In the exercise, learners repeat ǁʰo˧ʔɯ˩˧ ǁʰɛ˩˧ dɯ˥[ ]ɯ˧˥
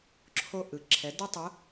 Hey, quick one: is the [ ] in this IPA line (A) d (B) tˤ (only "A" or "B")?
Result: B